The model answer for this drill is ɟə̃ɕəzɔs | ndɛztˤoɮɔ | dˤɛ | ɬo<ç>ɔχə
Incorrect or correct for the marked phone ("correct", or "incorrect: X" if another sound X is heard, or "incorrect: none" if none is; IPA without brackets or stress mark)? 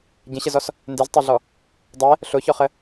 correct